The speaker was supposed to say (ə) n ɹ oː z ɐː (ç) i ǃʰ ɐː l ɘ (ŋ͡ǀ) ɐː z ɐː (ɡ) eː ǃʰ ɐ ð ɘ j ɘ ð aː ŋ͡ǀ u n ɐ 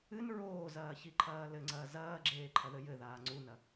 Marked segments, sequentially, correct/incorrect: incorrect, correct, correct, incorrect

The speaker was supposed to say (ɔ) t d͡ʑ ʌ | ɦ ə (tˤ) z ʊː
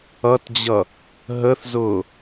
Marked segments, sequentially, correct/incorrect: incorrect, incorrect

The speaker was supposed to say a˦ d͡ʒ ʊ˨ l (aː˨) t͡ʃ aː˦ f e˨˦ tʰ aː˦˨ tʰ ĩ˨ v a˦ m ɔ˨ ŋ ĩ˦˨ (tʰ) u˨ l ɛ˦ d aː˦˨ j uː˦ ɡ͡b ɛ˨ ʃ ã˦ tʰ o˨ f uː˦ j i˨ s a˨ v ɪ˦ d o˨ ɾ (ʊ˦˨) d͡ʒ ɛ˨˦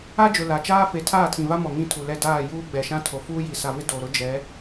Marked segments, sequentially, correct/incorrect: incorrect, correct, incorrect

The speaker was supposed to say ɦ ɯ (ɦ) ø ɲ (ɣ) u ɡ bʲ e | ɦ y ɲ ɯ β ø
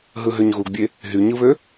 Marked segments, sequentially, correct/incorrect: correct, correct

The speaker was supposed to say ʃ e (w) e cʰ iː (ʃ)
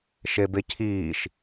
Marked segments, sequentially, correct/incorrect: incorrect, correct

